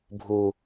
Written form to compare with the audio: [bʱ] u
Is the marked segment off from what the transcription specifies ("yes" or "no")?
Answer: no